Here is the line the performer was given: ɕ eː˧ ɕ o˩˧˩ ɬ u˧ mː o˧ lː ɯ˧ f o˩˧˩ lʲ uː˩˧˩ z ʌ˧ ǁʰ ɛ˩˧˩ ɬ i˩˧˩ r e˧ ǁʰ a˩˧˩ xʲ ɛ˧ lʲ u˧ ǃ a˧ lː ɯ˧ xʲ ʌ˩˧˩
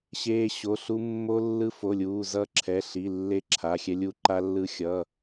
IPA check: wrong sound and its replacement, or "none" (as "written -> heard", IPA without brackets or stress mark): r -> lː